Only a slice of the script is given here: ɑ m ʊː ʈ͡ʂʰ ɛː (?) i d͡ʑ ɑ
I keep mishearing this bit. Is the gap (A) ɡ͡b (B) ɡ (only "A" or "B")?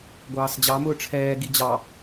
B